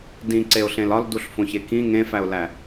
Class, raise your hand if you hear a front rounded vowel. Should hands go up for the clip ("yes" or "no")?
no